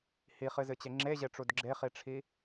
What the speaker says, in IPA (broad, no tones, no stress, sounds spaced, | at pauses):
h i χ ɨ z ɨ t͡ɕ e ŋ͡ǁ e ʑ e ʈ͡ʂ u d ɡ͡ǁ e χ i ʈ͡ʂʰ i